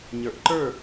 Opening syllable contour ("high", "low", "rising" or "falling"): low